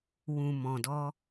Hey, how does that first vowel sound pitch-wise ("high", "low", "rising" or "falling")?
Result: low